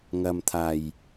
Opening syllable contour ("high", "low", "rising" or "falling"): low